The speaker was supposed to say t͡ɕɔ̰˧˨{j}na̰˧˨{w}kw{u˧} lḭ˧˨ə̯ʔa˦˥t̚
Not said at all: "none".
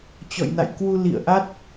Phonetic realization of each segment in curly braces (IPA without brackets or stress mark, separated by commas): j, j, u˧